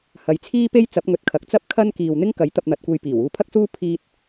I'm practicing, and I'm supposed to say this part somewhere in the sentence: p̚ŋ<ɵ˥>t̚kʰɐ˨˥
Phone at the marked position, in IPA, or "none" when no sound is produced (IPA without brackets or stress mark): ɵ˨